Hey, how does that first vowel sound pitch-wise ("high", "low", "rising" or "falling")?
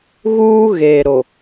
high